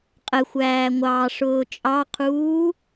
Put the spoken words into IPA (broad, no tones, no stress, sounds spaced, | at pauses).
qʼ ə xʷ æː ŋʷ ɑː ʂ ʊː t͡ʃʼ ɑ qʰ uː